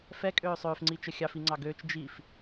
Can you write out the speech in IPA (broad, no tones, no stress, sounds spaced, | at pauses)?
f ɛ kʼ øː sˤ øː f ŋ͡ǀ i t͡ʃ ə xʲ ɑ f i ŋ͡ǀ ɑ ɡ øː t͡ʃ d͡ʒ i f